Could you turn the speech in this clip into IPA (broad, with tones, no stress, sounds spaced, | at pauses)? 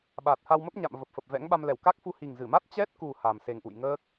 ɓ aː˨˩ t̚ h a˧ w m ə˦˥ p̚ ɲ a̰˧˨ m v ə˨˩ p̚ f ə˨˩ p̚ v ɛ̰˧˥ ŋ ɓ a˧ m l ɛ˧˩ w k a˦˥ k̚ f u˧ h i˨˩ ŋ z ɨ˧˩ m a˦˥ t̚ t͡ɕ ɛ˦˥ t̚ k u˨˩ h a˨˩ m s e˨˩ ŋ ʔ ṵ˧˨ j ŋ əː˦˥ k̚